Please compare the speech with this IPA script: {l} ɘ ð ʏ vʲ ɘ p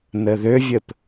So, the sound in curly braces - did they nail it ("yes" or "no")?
no